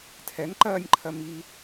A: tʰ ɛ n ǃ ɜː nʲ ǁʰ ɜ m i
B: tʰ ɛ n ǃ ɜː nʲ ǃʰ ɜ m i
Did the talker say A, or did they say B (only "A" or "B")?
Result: B